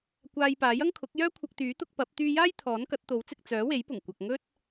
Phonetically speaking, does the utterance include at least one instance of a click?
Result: no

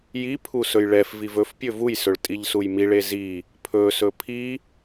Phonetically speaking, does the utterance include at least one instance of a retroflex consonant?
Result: yes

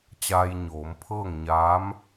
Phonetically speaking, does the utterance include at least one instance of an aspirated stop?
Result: yes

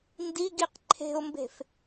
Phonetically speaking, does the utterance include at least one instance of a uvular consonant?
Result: yes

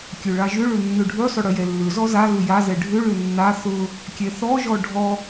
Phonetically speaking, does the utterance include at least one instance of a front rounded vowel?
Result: yes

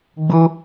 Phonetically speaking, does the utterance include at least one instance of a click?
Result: no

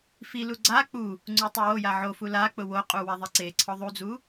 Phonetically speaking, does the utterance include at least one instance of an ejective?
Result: yes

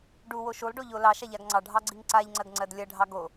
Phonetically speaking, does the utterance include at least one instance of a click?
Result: yes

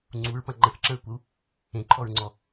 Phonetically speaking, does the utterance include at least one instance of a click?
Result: yes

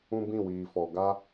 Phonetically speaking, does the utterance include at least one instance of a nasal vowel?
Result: yes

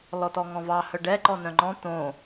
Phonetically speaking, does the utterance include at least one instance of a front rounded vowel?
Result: yes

